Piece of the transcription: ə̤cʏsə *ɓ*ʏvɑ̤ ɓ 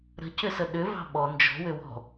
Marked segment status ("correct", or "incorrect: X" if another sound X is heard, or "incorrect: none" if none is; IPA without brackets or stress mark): incorrect: ɗ